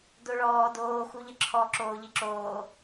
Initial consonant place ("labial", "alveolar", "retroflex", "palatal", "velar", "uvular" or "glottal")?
alveolar